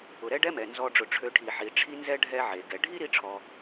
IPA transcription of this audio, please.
ʊ˩ ɾ ɛ˦ ɖ ɛ˦ m ɛ˩ n z ɔ˨ ɖ͡ʐ ʊ˩ ʈ͡ʂʰ ø˨ ʈʰ i˩ ħ i˩ ʈ͡ʂʰ i˥ n z ɛ˥ ɖʱ ɛ˥ ʕ e˩ ɡ ɛ˩ ɖʱ i˥ ɾ i˥ ʈ͡ʂʰ ɔ˨

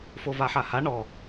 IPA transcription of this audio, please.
f o v a ħ a h a ɳ ɔ

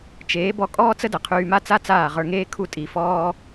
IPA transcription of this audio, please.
t͡ʃ eː˨˦ b ɔ˧ kʼ ɔː˦ t͡s ə˦ d ə˨ qʰ yː˧ m a˦ t͡s a˦ t͡s aː˦˨ ʁ ə˞˧ ŋ eː˦ kʰ u˦ tʼ i˧ f ɔː˦

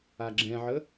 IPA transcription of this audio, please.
a ɡ͡ǁ ɛ̃ ʕ ə

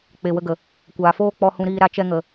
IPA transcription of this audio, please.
k͡p e˨ w ə˧ ɡ ə˨ | kʷ aː˨ f oː˦ k͡p ɔ˨ h ũ˨ ɾ iː˨ ɾ a˧ t͡ʃ ɛ˧ ŋ ə˨

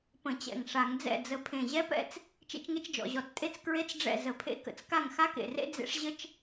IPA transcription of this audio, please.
p ə̃˧˩˧ t͡ɕ ɛ̰˧˩ ŋ ʂ a˧˩˧ ŋ d͡z ɛ̰˥˩ d͡z ə˧˩ pʰ ẽ˧˩ ʑ ɛ˥ p ɛ̰˥ t͡s | t͡ʃ ḛ˥ t͡ʃ ŋ e˥ t͡ʃ d͡ʒ ɔ̰˧˩˧ ʑ ɔ˧˩˧ t͡s tʼ e˥ t͡s k ɹ e˥ t͡s ɖ͡ʐ ɛ̰˥˩ z ə˧˩˧ pʰ ḛ˥ k ə̰˧˩ t͡s k a˥˩ ŋ x a˥ k ḛ˧˩ r ḛ˥ d͡z ḛ˥ ʂ ʑ ə˥ t͡ʃ

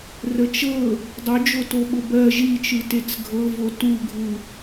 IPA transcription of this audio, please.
r ə t͡ʃ ɤ | dˤ ʊ d͡ʒ o t o ɓ ʊ b ɜ ʒ i t͡ʃ ɯ t e t͡s ɡʱ ɤ v o t u ɡʱ u

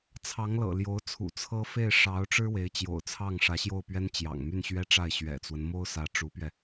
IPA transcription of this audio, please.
t͡sʰ ɑ˧˥ ŋ l ɤ̰˨˩ l j o˧˥ ʊ̯ t͡sʰ ṵ˨˩ t͡sʰ ɤ˥ f e˥˩ ɪ̯ ʂ ɑ˧˥ ʊ̯ ʈ͡ʂ ɻ̩˥ w e˧˥ ɪ̯ t͡ɕ j o̰˨˩ ʊ̯ t͡sʰ ɑ˥˩ ŋ ʂ ä˧˥ ɕ j o˥˩ ʊ̯ p ɥ ɛ˥ n t͡ɕ j ɑ̰˨˩ ŋ m y˥˩ n ɕ ɥ ɛ˥ ʈ͡ʂ a˥˩ ɪ̯ ɕ ɥ ɛ̰˨˩ t͡s w ə˦ n m o˥ ʊ̯ s ä˧˥ ʈ͡ʂ u˧˥ p ɥ ɛ˧

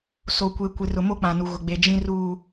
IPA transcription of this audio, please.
s o˨ kʷ e˨ kʷ ɪ˨ r ʊ˨ m o˦ k͡p ã˨ n u˨ ɣ ʊ˨ ɡ͡b e˨ d͡ʒ ĩ˦ r uː˦

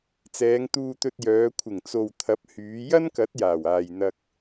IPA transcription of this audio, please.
t͡s ɛː˨˧ ŋ t̪ uː˧ t̪ ɵ˧ t̚ j œː˨˧ kʷʰ ɪ˨˩ ŋ t͡s o˨ w t̪ʰ ɐ˨˥ p̚ h yː˨˧ j ɐ˥ n k ɐ˨˥ t̚ j aː˨˩ w aː˨ j n̪ ɐ˧ k̚

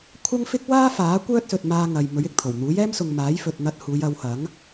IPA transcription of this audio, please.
kʷʰ ɐ˥ ŋ f ɪ˥ k̚ w aː˥ f aː˨˥ kʷ œː˥ t̚ s ɵ˨ t̚ m aː˧ ŋ ɐ˨ j m ɵ˨˥ ɥ ɪ˨ k̚ t̪ʰ o˨˩ w n̪ uː˨˥ j ɛː˥ m s ʊ˨ ŋ m aː˨˥ j f ɵ˨ t̚ n̪ ɐ˧ t̚ h uː˨˧ j ɐ˨˧ w h ɐ˨˥ ŋ

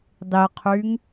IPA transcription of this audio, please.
dˤ i qʰ y ŋ

